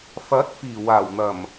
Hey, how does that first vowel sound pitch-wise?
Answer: rising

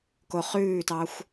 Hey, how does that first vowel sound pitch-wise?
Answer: low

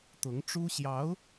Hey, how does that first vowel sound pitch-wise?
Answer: rising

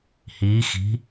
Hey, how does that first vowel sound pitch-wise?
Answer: rising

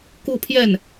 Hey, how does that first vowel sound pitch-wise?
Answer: falling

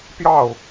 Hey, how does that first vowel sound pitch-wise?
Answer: falling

